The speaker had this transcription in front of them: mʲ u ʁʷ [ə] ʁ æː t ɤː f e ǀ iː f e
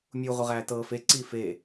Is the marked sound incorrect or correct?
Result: correct